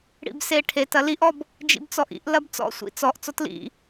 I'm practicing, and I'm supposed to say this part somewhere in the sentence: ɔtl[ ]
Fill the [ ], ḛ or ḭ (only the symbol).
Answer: ḭ